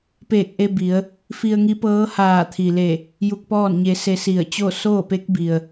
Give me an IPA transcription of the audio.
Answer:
p eː˧˩ k̚ ʔ e˧ b i˩˧ ə̯ | f i˧ ə̯ ŋ i˧˥ p ɤː˧˥ h aː˧˩ t̪ʰ i˩ l e˧˩ | j u˧ k̚ p ɔː˥˨ n ɲ e˧ s e˧ s i˧˩ ə̯ t͡ɕ o˥˨ s oː˥˨ p e˧˥ k̚ b i˩ ə̯

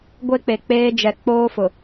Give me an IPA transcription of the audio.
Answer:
ɡʷ e˦ k͡p e˨ k͡p eː˦ d͡ʒ ɛ˨ k͡p oː˦ f ʊ˨

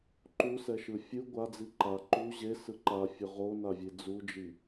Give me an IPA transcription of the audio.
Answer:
ǃ u s ɛ ʃ ɯ fʲ ɯ ɡʷ a d͡z i ǃ a ǃ u ʑ e s ɯ ǃ a fʲ ɯ ʁ o n a vʲ e d͡z u d͡ʒ i

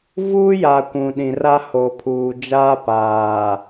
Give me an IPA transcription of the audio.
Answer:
v uː˦ j a˨ kʷ ũ˨ ɗ ĩ˨ r a˦ h o˨ pʰ uː˨ d͡ʒ aː˦ p aː˨

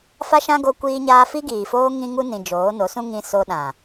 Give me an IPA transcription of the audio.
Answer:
f a˦ ʃ ã˦ ɡ o˦ kʷ iː˦ ɲ aː˦ f i˦ ɡ iː˨ f oː˦ ŋ ĩ˦ ŋ u˦ n ĩ˨ d͡ʒ oː˨˦ n o˨˦ s ũ˦ ŋ ĩ˦ s o˦ ɗ ã˨

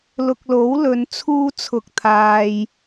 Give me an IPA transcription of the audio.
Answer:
l ʊ˨ k̚ l o˨˥ w l ɵ˨˧ n t͡sʰ uː˥ t͡sʰ ʊ˧ k̚ t̪ʰ aː˧ j

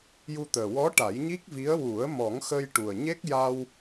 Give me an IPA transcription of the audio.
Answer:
j u˧ t̪ əː˨˩ w ɔ˧˥ ʈ a˨˩˦ j ɲ i˦˥ k̚ v i˧˥ ə̯ w u˨˩˦ ə̯ m ɔ˨˩˦ ŋ x ə˧ j ʈ u˨˩ ə̯ ɲ e˦˥ k̚ j a˧ w

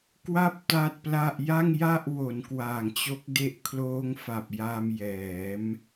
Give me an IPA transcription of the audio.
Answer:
k w a˥˩ p̚ t a˥˩ t̚ p l a˥˩ ʔ j a˥˩ ŋ j a˥˩ ʔ w o˩˦ n k w aː˨˩ ŋ t͡ɕ o˦˥ k̚ d e˦˥ ʔ kʰ l oː˦˥ ŋ f a˨˩ p̚ j a˧ m j ɛː˩˦ m

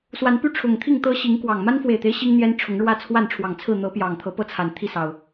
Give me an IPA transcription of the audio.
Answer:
s w a˨˦ n p y˦ ʈ͡ʂʰ ʊ˨˩ ŋ t̪ʰ i˥˨ ŋ t̪ ɤ˦ ɕ i˨˦ ŋ k w ɑ˨˩ ŋ m a˦ n f w e˨˩ ɪ̯ t̪ e˦ ɪ̯ ɕ i˦ ŋ n̪ j ɛ˦ n ʈ͡ʂʰ ʊ˨˦ ŋ ɻ w ä˥˨ t͡sʰ w a˥˨ n ʈ͡ʂʰ w ɑ˨˩ ŋ t͡sʰ ɹ̩˥˨ n̪ ɤ˨˦ p j ɑ˨˩ ŋ t̪ʰ ɤ˨˦ p ɤ˦ t͡sʰ a˨˩ n t̪ʰ i˥˨ s ɑ˨˩ ʊ̯

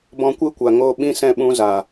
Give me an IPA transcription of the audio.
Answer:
b ɔ̃˧ kʷ ɨ˦ kʷ a˨ ŋ oː˧ ɓ ĩ˦ s ɛ̃˦˨ ɓ ũ˧ z a˨

